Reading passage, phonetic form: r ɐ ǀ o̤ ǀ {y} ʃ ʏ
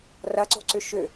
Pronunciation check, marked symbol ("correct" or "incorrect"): incorrect